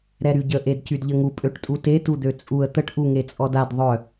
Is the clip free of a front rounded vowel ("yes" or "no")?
no